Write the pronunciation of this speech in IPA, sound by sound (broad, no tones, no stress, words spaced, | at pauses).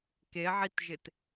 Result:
keʕitʒɪt